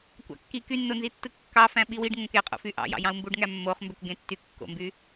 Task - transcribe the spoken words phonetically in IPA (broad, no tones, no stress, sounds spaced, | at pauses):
kʷ ɑ̰ kː i k y nː o n z i tː ɯ kː ɑ f æ̃ ɓ i w i ɖ ŋ õ k e qʼ o̰ f y ʔ ɑ̰ j ɑ̰ j ɑ̃ u̯ m b u ɖ ŋ æ mː o χ m b ø k ɡ ẽ tː y kː o̰ m b y